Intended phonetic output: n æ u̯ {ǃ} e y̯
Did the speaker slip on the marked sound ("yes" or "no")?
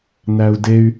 yes